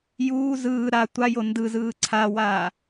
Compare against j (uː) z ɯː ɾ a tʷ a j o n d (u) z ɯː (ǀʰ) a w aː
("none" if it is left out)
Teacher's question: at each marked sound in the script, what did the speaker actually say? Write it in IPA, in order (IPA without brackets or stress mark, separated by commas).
uː, ɯ, ǀʰ